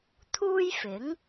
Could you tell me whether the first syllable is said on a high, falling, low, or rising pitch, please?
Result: high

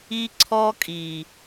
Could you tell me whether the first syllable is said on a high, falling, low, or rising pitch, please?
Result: high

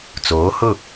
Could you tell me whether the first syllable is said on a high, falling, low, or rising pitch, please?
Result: rising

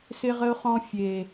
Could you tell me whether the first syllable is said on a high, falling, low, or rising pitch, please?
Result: high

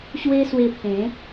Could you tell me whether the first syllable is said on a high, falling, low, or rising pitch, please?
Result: high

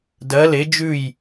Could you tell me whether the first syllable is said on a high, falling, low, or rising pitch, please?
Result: rising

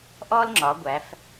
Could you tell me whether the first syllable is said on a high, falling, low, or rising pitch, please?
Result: high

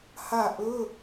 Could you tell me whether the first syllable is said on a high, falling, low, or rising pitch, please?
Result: falling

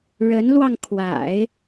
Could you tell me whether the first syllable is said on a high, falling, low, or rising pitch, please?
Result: rising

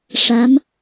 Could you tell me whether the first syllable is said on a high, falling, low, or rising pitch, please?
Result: rising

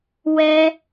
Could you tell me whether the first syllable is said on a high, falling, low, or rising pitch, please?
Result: high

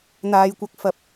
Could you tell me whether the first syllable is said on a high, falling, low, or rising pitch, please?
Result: low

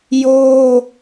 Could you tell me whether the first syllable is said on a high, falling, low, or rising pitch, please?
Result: high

